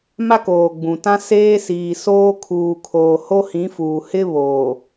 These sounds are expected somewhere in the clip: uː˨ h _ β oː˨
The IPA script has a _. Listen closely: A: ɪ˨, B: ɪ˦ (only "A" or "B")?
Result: B